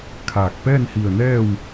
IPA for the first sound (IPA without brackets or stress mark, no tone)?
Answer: kʰ